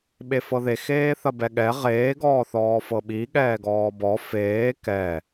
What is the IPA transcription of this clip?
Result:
ɓ e f ɤ ð e x eː θ ɐ b ɛ ɠ ɛ ʁ eː ɡ ɔː θ ɔː f ɤ ɓ i ɠ ɛː ɡ ɔː b ɔ f eː k ɛ

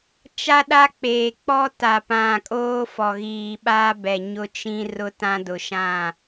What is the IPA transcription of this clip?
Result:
t͡ʃ a˦ ɗ a˦ k͡p eː˨ k͡p ɔ˦ t a˨ p ã˨ kʼ oː˦ f ɔ˨ ɣ iː˨ ɓ aː˦ b ɛ˨ ɲ ʊ˦ t͡ʃ ĩ˦ r ʊ˦ t ã˦ d ʊ˨ ʃ ã˦˨

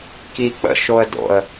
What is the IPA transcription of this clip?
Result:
k i k͡p ə̰ ʃ o ə̯ d o̰ ə̯

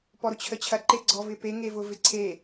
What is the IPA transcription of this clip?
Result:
p ɔ ɾ ʊ t͡ɕʰ ə t͡ɕʰ ɐ ǃ e ɡ͡ǀ ɔ v ɪ p e ŋ e v ʊ v ɪ ǀʰ e

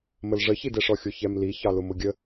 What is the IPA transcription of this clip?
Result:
m ə l ʐ ə ç i d ɛ ʂ ɔ xʲ ʊ ç ɛ m l i ç ɑ l ʊ m ʊ ɡʲ ə

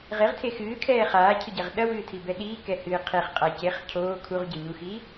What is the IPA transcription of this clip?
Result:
ʁ e ʁ tʰ e x ɨː kʰ ɛː χ aː cʰ ɨ ɟ ɛ ʁ ɗ ɐ w ɨː tʰ i b ɛ ɗ iː k ɛ h ɨː qʰ e χ qʼ a c e χ cʰ oː kʰ u ʁ ɟ ɘ ɲ u x iː

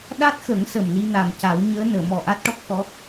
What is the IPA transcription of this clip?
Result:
ɗ a˦˥ t̚ x ə˨˩˦ ŋ s ə˨˩ m l i˧ n a˨˩ m c a˨˩˦ w ɲ əː˧˥ n əː˨˩˨ m ɔ˨˩ ʔ a˦˥ t̚ ʈ ɔ˦˥ k̚ x ɔ˧˥

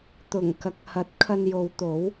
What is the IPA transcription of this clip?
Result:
t̪ ʊ˨˩ ŋ k ɐ˨˥ k̚ h ɐ˨˥ t̚ kʰ ɐ˧ n j o˨˧ w t̪ o˨˥ w

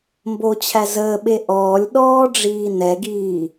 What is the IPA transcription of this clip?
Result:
m b o t͡ɕʰ æ z əː ɓ e ʔ ɔː lʲ ɗ ɔː ɖ͡ʐ iː n ɛ ɡ iː

